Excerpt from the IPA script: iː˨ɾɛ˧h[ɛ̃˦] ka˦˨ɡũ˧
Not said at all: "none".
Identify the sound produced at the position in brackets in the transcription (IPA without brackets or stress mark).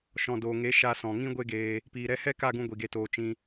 ɛ˦